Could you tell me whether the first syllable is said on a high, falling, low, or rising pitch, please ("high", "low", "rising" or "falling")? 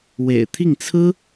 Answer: low